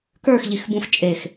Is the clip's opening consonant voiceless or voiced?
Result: voiceless